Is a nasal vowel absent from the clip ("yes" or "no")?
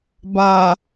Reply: yes